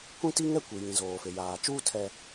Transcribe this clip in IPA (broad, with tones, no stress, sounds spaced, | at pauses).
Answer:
kʷ ĩ˦ t i˦ ŋ ɛ˦ kʷ i˨ j ĩ˨ z oː˨ f e˨ j aː˨ t͡ʃ uː˦ tʰ ɛ˨